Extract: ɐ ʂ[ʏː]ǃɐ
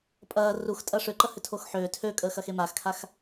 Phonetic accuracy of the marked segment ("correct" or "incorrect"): correct